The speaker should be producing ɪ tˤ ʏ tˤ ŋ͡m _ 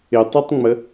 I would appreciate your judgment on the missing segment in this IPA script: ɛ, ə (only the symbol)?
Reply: ə